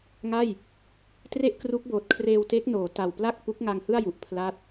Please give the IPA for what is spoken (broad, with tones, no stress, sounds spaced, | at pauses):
ŋ a˥˩ j | t r e˥˩ ʔ k r u˦˥ k̚ b oː˨˩ t̚ kʰ r eː˧ w t e˦˥ k̚ n oː˩˦ t a˨˩ w p l a˥˩ k̚ p u˦˥ k̚ ŋ a˧ ŋ h ɯ˥˩ a̯ j u˨˩ ʔ pʰ l a˦˥ t̚